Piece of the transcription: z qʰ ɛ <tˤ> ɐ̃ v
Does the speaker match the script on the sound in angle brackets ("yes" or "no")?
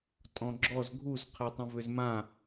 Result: yes